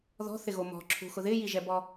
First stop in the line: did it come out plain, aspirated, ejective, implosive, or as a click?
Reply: click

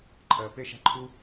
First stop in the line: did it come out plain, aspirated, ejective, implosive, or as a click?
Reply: click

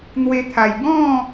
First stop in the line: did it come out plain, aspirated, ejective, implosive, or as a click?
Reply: aspirated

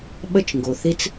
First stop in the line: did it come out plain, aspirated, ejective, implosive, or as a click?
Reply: implosive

